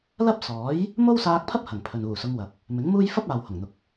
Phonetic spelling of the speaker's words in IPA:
l ɐ˥ p̚ s ɔː˨˥ j | m o˥ w s aː˧ k̚ pʰ ɐ˥ p̚ h ɐ˨˩ ŋ pʰ ɵ˨ n uː˨˩ s ʊ˨˧ ŋ w ɐ˨ p̚ | m ɪ˨˥ ŋ m uː˥ j f ɐ˥ p̚ aː˨ w h ʊ˨˩ ŋ n̪ ʊ˨ k̚

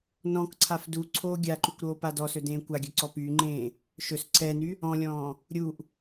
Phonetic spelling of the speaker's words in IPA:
n ɔ̃ k ǀʰ a f d u ǀʰ oː ɡʲ a ǃ y kʷ ɾ oː p a d ɔ s ɵ d ẽː kʷ a ɡʲ ɵ ǀ ɔ p yː ŋ͡ǃ ẽː | ʃ ɵ s ǀʰ ɛː n y | ɔ̃ lʲ ɔ̃ː | ɾʲ u ʔ

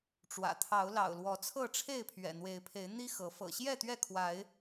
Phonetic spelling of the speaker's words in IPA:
ʈ͡ʂ w ä̰˨˩ t̪ʰ ɑ˨˦ ʊ̯ l ɑ̰˨˩ ʊ̯ l w ɔ˨˦ t͡sʰ ɤ˥˨ ʈ͡ʂʰ e˥˨ ɪ̯ pʰ ɥ ɛ̰˨˩ n̪ w e˨˦ ɪ̯ pʰ e˨˦ ɪ̯ n̪ i˦ x ɤ˨˦ f ɤ̰˨˩ ɕ j ɛ˥˨ t̪ ɥ ɛ˥˨ kʰ w a˨˦ ɪ̯

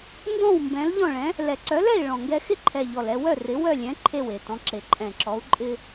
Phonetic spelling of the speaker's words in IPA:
n d ɔ̃˥˨ w m b ɛ̃˨˥ l ʎ ɔ̃˥˨ ɭ ɛ̃˨˥ | l ɛ˨˩ ǀ œ˨˥ l ɛ˥˨ i̯ ɭ ɔ̃˨˩ ŋ ɡ ɛ˦ x ɪ˥˨ ǃʰ ɛ˨˩ ʎ ɔ˨˩ l ɛ˦ w œ˥˨ r ɪ˨˥ w œ˥˨ lʲ ɛ̃˨˥ ǃʰ e˥˨ w e˨˩ t ɔ̃˨˥ ǁ e˨˩ ǃʼ ɛ̃˨˩ ǁ ɔ˨˥ u̯ ǃʼ ɪ˦

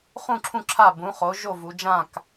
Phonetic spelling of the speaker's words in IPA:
χ ũ˥˨ ǁʰ ũ˥˨ ǁʰ a˥˨ b ũ˩˧ χ o˩˧ ʒ o˥˨ v u˩˧ d͡ʒ ã˥˨ k

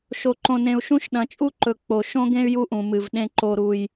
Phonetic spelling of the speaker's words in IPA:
ʃ o˨ ǃ õ˨ n ẽ˨ u̯ ʃ ũ˦ ʃ ɗ ɐ̃˨ t͡ʃʼ u˦ ǃ ɵ˨ k͡p o˨ ʃ õ˦ ɡ ẽ˦ y̯ j u˦ ʔ ũ˨ m ɨ˨ v ɗ ẽ˦ ǃ o˦ ɾ u˦ j

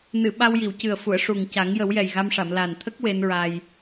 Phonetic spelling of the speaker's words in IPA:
n ɨ˨˩˨ ɓ a˧ w j i˨˩˨ w c ɨ˨˩ ə̯ f u˨˩˨ ə̯ ʂ u˨˩ ŋ c a˨˩˦ ŋ j ə˨˩˦ w j ɛ˨˩ j ɣ a˧ m ʂ a˨˩˨ m l a˨˩ n t̪ʰ ə˦˥ k̚ w e˧˥ n ɹ a˧ j

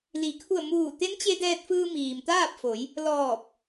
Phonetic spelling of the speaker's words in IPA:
l i˩˧ kʰ u˧˩ ə̯ m uː˧˩ t̪ e˧˥ n t͡ɕ e˧ d ɛː˧ t̚ f ɯː˧ m iː˩ m t̪ aː˥˨ p̚ f o˩˧ j | l ɔː˧˩ p̚

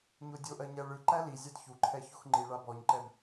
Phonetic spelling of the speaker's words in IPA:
ɲ o dʲ o ʔ ɜ ɲ æ ɭ ɯ ǃ æ l i zʲ a d ç u ǃʰ ɛ ç o x ŋ͡ǃ i ɭ a b ɔ ɲ ǃ ɛ b

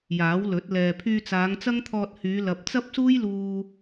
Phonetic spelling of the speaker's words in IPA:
j aː˨˥ w l ɵ˨˥ t̚ l ɛː˨ pʰ yː˧ t͡s aː˨˧ ŋ t͡s ɐ˥ ŋ t̪ʰ ɔː˧ t̚ h yː˨˧ l ɐ˨ p̚ t͡s ɐ˥ p̚ s uː˥ j l uː˧

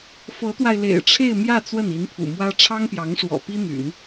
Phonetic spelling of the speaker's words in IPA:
f ɤ˧˥ t̪ w a˧ ɪ̯ l ḛ˨˩ ɪ̯ ʈ͡ʂʰ e˥˧ ɪ̯ m j ä˥˧ t͡s w ə˥˩ n i˧˥ n pʰ ṵ˨˩ m w ä˥ ʈ͡ʂʰ ɑ˥ ŋ p j ɑ˧˥ ŋ ʂ w ɔ̰˨˩ p i˥ n̪ y̰˨˩˦ n

